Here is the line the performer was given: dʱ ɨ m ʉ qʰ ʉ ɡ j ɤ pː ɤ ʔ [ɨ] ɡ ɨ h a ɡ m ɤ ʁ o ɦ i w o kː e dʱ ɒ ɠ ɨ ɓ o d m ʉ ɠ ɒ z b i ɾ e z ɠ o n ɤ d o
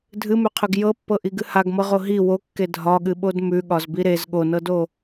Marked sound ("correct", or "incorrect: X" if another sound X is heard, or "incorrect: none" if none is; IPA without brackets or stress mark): incorrect: i